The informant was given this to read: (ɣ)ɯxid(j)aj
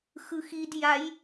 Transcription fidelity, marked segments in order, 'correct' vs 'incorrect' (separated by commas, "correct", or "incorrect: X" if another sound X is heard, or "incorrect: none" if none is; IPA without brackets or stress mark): incorrect: x, correct